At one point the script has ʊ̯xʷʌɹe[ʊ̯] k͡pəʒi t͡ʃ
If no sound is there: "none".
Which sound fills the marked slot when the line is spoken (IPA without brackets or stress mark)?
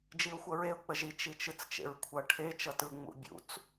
ʊ̯